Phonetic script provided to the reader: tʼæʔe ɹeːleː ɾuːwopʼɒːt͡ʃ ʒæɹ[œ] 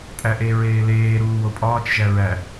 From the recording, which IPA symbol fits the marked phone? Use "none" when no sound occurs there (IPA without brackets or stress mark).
æ